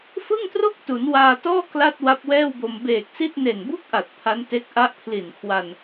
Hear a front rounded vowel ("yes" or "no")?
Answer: no